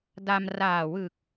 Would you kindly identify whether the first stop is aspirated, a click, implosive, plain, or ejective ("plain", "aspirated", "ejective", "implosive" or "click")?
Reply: plain